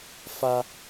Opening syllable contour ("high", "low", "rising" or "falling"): high